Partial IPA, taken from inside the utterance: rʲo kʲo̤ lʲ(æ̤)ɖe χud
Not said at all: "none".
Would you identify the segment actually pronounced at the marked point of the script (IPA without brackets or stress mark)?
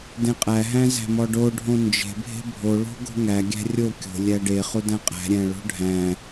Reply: æ